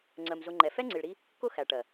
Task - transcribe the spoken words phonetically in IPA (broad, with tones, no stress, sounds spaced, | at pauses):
ŋ͡ǀ ɜ˨ m z ʊ˧ ŋ͡ǃ ɛ˨ f ɛ˦ ŋ͡ǀ i˨ ɭ ɾ i˦ | k ʊ˦ x æ˨ ʈ ɜ˨